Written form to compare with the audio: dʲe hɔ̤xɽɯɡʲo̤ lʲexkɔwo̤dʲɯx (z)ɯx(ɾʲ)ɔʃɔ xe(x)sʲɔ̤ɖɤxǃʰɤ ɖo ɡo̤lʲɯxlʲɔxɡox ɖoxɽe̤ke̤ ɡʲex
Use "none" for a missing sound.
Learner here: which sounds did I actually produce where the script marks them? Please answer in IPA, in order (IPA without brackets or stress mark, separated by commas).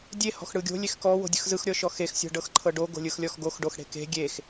z, ɾʲ, x